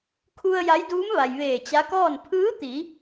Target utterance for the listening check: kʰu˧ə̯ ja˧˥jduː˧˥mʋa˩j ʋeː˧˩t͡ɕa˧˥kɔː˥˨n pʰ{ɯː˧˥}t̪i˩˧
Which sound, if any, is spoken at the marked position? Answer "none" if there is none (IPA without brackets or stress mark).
ɯː˧˥